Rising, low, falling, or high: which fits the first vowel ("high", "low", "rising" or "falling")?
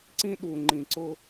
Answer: high